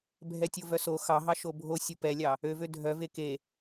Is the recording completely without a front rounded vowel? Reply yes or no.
no